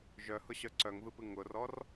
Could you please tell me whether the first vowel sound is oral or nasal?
oral